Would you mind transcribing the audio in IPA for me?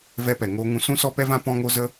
v ɛ˧ p ɛ˨ ŋ oː˧ ŋ ũ˧ s ũ˦ s ɔ˦ p ɛ˦ v ã˦ p ɔ̃˦ ŋ o˦ z ə˦

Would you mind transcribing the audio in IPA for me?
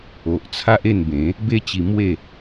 o˨ ʔ t͡sʰ a˦ ʔ e˥˧ n b ẽ˨˦ | b e˦ t͡ɕ i˧ m w e˥˧

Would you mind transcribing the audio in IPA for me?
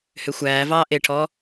h ø xʷ æː v ɑː ʔ e ʈʰ ɔ

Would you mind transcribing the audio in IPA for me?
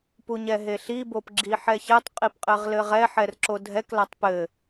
p u ɲ ɛ ɦ e ɬ i b o p ɡ͡ǁ i ħ ɛ ç ɛ tˤ qʼ i p qʼ ɘ ʁ l ɘ ʁ ɛ ħ ɛ r ǁ o dʱ ɛ k l a tˤ p ɘ

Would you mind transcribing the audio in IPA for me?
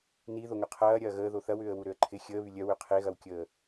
n i ð o ŋ ʏ qʰ ɐː ɾʲ ɐː ɣ əː ð o θ ɐ w ʏː ə̯ w u ɾ ø ə̯ ǃʰ ɪ xʲ əː β y lʲ œ w ø qʰ e ɣ ɐ w kʲ əː

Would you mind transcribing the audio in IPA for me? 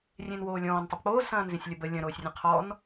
rʲ ẽ n w oː lʲ ɔ̃ː n tˤ ə b k͡p oː z s ɐ̃ː n z ẽ sʲ lʲ ɐ b ə lʲ ɐ̃ ɾ oː sʲ rʲ ə̃ qʰ ɔ n

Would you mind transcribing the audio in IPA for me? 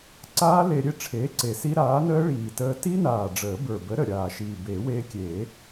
ǀ aː˦˥ l e˧ ɾʲ e˥˩ ʈ͡ʂʰ eː˨˥ ǀ e˨˩ s i˦˥ ɾ aː˨˥ n əː˦˥ ɭ iː˨˩ t əː˧ t i˦˥ n aː˨˩ ɖ͡ʐ əː˨˩˦ b ə˞˨˩ b ə˨˥ ɾ ə˨˩ ɾʲ aː˨˩ ʃ iː˨˩ b eː˨˩˦ w eː˧ kʲ eː˨˩˦

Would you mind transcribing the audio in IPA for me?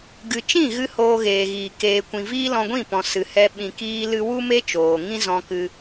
ɡ ɨ˨ t͡ʃ ĩ˦˨ ɣ ɨ˧ h oː˧ ɣ eː˨ ɣ iː˨ k eː˨ kʷ ĩ˨ v iː˦ l ɔ̃˧ ɡʷ ĩ˦˨ p ɔ̃˨ s ɨ˨ h ɛ˧ ɓ ĩ˨ k iː˧ l ɨ˧ w u˦ m e˦ t͡ʃ oː˨ ŋ ĩ˦ z ɔ̃˧ k ɨ˧

